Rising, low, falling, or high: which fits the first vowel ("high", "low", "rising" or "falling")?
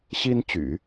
high